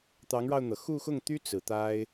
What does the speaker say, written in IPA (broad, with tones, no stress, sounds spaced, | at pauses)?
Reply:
t̪ ɑ˧˥ ŋ ɻ ɑ˧ ʊ̯ n̪ ɤ˩ x u˥˧ x ʊ˥˩ ŋ t̪ y˥ t͡s ɹ̩˨˩ t̪ a˥ ɪ̯